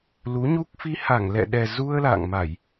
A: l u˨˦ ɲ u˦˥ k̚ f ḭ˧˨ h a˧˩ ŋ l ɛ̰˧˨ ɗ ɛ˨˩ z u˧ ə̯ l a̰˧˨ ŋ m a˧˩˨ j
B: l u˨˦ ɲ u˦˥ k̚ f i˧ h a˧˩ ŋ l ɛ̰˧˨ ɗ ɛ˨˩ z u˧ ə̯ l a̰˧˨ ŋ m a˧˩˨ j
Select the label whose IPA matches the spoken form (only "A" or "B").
B